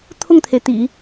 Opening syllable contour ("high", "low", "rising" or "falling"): falling